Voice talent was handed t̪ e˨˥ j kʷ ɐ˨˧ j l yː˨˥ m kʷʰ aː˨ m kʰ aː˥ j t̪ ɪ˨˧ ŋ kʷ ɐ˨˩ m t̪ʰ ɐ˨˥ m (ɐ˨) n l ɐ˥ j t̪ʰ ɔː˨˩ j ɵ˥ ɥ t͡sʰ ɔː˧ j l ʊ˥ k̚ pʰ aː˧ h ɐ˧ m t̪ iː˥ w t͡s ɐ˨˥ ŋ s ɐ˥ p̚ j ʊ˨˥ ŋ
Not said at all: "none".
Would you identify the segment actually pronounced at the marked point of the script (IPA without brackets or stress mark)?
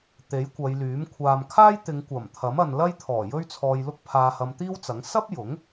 ɐ˨